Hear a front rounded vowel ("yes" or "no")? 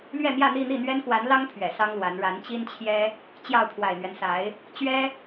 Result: no